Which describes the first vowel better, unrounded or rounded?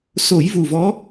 rounded